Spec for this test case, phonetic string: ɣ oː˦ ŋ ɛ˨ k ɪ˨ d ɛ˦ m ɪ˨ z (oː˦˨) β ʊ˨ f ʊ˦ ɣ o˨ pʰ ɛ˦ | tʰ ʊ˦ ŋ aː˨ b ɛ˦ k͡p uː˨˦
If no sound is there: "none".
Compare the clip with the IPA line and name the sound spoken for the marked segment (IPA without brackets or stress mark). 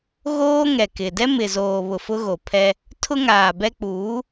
oː˨